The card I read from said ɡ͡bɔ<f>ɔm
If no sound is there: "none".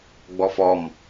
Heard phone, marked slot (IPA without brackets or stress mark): f